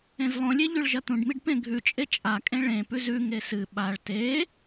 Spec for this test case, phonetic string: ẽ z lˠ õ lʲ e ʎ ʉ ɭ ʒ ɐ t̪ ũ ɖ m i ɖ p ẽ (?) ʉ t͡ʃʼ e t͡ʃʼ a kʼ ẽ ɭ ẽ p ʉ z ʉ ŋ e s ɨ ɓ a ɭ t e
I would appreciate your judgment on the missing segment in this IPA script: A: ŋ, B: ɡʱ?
B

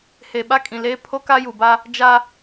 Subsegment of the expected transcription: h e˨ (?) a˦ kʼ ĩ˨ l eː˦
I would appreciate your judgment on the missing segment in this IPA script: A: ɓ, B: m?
A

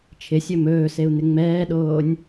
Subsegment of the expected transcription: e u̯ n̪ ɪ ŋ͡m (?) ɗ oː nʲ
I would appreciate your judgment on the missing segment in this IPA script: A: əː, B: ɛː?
B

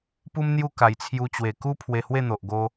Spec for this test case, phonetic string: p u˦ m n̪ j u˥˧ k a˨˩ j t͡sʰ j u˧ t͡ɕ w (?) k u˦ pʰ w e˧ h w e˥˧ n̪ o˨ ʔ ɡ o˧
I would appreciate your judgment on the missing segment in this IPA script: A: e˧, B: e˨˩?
B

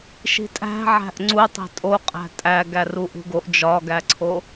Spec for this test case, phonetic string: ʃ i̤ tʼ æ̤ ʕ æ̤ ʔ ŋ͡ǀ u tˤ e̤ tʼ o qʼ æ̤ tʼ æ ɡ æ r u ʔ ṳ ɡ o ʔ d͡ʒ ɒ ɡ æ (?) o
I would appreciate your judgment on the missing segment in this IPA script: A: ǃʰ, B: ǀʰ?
B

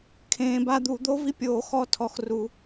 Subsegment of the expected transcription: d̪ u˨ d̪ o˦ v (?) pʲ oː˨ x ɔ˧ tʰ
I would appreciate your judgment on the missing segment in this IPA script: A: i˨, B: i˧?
B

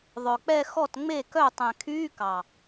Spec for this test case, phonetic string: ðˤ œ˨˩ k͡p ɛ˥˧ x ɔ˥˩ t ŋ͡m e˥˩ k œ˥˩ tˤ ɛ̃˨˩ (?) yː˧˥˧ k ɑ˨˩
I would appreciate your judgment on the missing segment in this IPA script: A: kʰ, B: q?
A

